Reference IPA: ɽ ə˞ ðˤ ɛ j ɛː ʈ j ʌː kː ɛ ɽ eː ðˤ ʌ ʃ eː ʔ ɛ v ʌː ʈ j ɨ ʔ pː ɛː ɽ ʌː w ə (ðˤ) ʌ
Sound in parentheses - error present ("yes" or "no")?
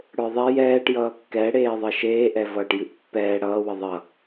no